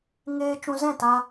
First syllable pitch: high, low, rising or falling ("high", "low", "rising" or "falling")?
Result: high